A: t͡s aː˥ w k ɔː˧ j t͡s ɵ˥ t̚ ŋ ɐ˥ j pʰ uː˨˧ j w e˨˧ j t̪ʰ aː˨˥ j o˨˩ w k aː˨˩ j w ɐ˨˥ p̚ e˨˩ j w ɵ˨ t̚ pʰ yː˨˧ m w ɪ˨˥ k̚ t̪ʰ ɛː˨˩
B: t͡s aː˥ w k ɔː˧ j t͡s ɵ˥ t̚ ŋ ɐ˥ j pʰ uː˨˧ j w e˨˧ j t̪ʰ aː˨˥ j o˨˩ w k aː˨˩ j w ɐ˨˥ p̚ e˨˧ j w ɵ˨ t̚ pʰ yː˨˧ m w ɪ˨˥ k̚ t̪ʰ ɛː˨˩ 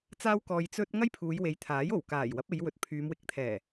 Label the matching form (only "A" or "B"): B